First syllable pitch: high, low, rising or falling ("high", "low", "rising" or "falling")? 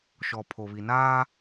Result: low